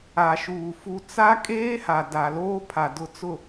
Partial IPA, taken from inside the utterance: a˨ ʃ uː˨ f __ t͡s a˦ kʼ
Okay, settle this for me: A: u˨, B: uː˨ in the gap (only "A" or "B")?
A